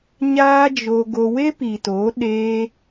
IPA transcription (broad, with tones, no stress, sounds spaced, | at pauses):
ɲ aː˦ d͡ʒ o˧ ɡ o˧ w e˦ p i˨ t o˨˦ ɗ eː˧